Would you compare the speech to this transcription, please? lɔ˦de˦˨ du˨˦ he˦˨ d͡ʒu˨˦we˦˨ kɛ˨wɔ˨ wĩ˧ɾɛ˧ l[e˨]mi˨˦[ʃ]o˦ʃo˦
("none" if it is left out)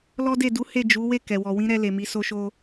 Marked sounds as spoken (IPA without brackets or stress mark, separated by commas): e˨, s